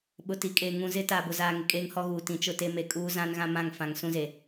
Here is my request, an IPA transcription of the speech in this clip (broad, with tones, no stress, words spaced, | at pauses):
ɓʊ˨ti˨kʼeː˨ ŋũ˨zɪ˦ taː˨bʊ˨zaː˨ ŋɪ˨kʼeː˦ŋhɔ˦ɣuː˨ tĩ˨t͡ʃʊ˦te˦ me˨kʼuː˦ zã˦nɣã˦mã˦˨ŋ fã˨ŋ sũ˦ze˨